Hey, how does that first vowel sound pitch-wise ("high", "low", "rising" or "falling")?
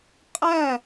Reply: falling